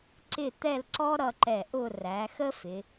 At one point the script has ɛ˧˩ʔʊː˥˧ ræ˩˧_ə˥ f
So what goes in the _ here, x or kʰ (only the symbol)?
x